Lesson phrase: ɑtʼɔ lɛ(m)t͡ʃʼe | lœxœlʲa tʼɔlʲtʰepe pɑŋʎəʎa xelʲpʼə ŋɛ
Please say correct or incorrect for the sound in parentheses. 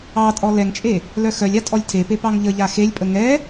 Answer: incorrect